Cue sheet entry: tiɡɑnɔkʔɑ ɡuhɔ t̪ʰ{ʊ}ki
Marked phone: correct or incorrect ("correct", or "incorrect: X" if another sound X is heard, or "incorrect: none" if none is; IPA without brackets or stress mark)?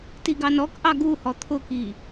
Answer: correct